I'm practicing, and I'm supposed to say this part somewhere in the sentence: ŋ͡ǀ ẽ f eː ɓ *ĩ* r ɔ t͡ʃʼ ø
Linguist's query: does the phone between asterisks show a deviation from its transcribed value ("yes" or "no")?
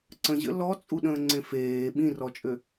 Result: no